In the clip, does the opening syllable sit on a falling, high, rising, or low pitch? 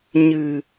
low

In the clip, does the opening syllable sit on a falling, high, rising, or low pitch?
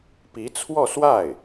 rising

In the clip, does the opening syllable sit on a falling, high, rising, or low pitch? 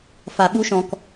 low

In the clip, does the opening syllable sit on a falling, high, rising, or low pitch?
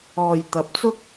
low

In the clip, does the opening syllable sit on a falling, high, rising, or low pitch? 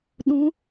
rising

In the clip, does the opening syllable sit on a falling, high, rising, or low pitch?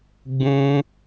high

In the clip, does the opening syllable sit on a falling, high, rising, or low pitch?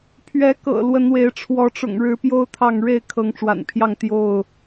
rising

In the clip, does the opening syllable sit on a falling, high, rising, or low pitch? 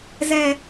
high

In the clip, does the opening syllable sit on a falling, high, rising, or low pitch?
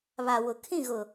low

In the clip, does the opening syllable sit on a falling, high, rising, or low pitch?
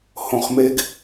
low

